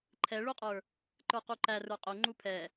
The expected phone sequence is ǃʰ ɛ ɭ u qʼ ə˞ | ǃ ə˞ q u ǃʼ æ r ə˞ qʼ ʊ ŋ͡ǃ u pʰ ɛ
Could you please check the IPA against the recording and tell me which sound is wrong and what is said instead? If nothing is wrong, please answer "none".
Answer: ǃʼ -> ǃ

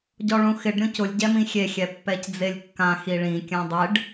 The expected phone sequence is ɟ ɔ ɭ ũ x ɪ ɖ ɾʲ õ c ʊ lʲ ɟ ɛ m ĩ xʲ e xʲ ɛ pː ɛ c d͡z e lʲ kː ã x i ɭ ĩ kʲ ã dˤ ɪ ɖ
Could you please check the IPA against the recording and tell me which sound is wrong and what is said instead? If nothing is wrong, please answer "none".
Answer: none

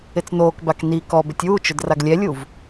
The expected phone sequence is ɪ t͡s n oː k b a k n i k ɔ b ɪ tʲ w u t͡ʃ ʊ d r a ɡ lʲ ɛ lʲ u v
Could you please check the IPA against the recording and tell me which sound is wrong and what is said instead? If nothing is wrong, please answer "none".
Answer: none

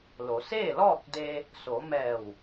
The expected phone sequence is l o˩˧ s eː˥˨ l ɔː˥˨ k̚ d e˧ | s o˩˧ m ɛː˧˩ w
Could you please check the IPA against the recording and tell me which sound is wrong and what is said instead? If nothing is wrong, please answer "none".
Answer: none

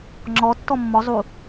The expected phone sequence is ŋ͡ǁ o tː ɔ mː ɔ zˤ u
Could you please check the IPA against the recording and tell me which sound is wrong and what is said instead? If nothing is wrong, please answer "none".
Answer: o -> ɔ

